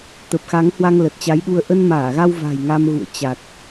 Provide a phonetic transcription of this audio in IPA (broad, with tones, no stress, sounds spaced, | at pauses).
t̪ ə˨˩ p̚ x a˨˦ ŋ h w a˧ ŋ l ə˨˩ t̚ t͡ɕ a˨˦ j ɗ u˧ ə̯ ʔ ə˧ n m aː˧˩ ɣ a˧ w v a̤˨˩ j ŋ a˧ m ɣ ṵ˧˨ ə̯ t͡ɕ a˨˩ t̚